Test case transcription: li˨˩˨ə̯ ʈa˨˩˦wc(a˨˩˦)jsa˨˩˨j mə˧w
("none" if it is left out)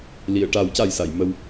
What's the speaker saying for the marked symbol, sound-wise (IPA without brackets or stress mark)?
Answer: a˨˩